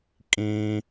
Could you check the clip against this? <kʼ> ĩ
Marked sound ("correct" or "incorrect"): correct